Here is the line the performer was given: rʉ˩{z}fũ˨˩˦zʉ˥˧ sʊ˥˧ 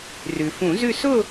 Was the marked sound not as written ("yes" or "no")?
yes